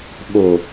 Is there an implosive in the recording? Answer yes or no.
yes